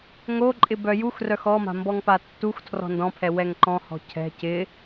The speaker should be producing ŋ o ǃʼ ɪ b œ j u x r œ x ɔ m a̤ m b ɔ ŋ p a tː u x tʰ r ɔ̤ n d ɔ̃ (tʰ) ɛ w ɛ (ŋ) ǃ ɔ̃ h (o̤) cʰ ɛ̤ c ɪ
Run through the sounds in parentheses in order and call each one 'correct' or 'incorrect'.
incorrect, correct, incorrect

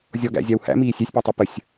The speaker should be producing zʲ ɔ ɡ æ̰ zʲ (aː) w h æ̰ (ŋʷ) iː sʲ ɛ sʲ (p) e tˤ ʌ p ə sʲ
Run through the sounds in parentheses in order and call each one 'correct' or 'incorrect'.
incorrect, incorrect, correct

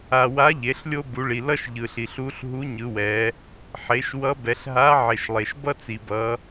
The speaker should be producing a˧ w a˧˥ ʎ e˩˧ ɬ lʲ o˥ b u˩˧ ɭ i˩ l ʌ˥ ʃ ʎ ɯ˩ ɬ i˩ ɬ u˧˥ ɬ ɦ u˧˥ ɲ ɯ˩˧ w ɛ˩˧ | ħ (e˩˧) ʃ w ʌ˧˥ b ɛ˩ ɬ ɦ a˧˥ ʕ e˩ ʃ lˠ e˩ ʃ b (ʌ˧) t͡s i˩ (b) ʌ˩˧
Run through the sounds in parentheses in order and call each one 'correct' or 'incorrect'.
correct, incorrect, correct

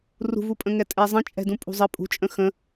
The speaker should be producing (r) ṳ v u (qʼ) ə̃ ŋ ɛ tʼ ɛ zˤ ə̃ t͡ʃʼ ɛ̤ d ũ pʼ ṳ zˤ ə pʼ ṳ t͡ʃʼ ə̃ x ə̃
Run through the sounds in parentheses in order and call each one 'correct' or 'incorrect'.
correct, incorrect

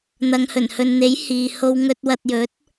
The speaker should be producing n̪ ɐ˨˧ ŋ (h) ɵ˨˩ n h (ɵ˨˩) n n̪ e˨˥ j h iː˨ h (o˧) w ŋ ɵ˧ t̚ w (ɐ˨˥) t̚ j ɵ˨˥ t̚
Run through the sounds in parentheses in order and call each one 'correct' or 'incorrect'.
correct, incorrect, correct, incorrect

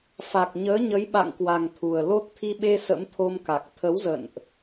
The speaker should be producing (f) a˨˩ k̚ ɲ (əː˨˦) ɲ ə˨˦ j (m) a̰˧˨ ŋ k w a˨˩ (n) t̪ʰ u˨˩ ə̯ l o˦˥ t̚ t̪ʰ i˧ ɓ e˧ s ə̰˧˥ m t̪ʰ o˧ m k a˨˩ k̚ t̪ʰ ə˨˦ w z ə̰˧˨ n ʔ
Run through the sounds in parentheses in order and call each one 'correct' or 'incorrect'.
correct, correct, incorrect, incorrect

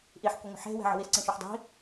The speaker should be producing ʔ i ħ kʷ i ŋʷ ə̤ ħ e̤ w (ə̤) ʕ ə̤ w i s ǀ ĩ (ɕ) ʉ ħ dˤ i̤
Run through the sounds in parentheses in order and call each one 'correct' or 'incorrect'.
incorrect, incorrect

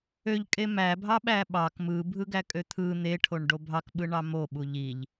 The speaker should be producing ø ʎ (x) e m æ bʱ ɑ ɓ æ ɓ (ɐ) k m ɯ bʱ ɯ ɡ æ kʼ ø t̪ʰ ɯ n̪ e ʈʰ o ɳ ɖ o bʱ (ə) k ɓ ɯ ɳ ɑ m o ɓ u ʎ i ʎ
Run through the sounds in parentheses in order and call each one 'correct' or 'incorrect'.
incorrect, incorrect, incorrect

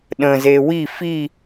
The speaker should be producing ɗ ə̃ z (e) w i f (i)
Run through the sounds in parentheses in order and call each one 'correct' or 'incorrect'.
correct, correct

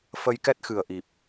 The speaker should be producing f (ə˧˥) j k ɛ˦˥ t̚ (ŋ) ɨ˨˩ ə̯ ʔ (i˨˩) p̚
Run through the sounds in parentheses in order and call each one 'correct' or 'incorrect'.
incorrect, incorrect, correct

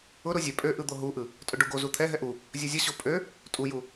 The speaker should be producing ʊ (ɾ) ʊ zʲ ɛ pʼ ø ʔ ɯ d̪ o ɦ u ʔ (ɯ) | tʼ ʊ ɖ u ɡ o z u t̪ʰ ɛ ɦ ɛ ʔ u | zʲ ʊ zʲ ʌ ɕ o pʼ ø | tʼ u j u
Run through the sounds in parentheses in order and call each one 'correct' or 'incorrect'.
correct, correct

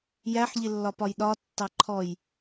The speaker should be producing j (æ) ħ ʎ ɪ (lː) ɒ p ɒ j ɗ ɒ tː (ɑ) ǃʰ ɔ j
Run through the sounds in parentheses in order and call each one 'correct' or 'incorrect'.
correct, correct, correct

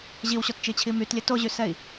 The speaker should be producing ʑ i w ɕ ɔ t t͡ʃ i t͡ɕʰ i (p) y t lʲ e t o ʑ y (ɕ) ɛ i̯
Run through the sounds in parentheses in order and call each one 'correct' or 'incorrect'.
incorrect, incorrect

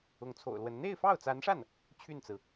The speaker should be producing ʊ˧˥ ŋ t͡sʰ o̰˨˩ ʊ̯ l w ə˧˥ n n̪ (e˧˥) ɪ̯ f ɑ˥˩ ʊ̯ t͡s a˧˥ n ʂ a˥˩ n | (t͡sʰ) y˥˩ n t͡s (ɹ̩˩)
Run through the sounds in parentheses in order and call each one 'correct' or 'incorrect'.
incorrect, incorrect, correct

